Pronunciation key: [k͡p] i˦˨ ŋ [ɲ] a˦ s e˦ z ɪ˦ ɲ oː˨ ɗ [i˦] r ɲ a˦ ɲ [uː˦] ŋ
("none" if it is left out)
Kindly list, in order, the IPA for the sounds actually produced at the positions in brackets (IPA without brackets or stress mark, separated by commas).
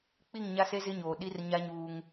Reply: k͡p, ɲ, i˦, uː˦